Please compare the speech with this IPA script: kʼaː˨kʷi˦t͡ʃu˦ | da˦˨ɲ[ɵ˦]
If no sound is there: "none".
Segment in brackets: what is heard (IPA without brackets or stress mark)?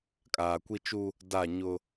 ʊ˦